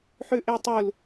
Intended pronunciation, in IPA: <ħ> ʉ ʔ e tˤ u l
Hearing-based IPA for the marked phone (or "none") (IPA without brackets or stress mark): ħ